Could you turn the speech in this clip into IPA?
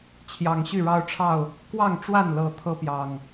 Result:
t͡ɕʰjɑ˨˩ŋɕy˥˨ ɻɑ˦ʊ̯ʈ͡ʂʰɑ˥˨ʊ̯ | kwɑ˥˨ŋʈ͡ʂwa˥˨nlɤ˨˩ t̪ʰɤ˦pjɑ˨˩ŋ

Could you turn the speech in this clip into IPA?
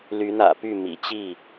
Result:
ly˨˦n̪ä̰˨˩py˥˨ mḭ˨˩t͡ɕi˥˨

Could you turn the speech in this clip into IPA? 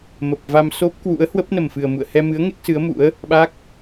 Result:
mə˨˩p̚va˧m so˦˥p̚kwṵ˧˥ə̯ hwə˦˥p̚nə˨˩mfɨ˨˩ə̯ mṵ˧˨ə̯hɛ˧mɨ˨˦ə̯ ŋe˦˥k̚sɨ˨˦ə̯mṵ˧˥ə̯ | ɓa˦˥k̚

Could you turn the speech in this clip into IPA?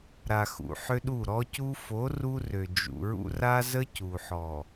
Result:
ɾa˨xṵ˨ ħʏ˦ɗu˦˨ ɾɔ˦cu˦ fo˨˦ ru˦rø˨ d͡ʒṵ˨ɹṵ˦ ra˦zə˦ cu˨ħɔ˨

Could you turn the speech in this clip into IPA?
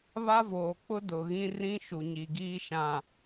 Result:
βa˦voː˨k͡pʊ˦ dʊ˨ɣĩ˦ rĩ˦ʃu˨ ɲi˨ɡiː˦ʃã˨

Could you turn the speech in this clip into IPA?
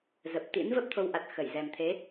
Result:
zə˨˩p̚t̪ḭ˧˥n və˦˥p̚t̪ʰo˨˦wʔa˨˩t̚ xə˧˩jzɛ˨˩mt̪ʰe˨˦

